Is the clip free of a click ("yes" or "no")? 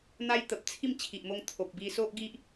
yes